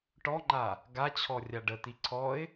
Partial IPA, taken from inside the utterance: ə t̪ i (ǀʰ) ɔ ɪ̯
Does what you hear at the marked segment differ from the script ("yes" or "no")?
no